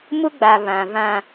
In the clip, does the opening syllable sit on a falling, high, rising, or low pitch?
high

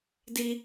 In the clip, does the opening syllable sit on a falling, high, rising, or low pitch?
high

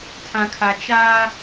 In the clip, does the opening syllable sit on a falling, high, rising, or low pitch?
low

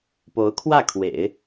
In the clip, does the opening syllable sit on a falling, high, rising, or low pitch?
rising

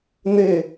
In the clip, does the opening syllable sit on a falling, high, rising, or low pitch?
falling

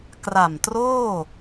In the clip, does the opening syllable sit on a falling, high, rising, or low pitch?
low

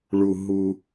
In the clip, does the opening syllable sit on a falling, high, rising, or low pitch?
low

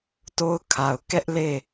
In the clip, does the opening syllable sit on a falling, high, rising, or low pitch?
high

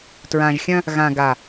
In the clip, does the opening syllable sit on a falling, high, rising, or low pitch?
low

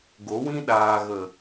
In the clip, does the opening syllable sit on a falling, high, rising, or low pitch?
rising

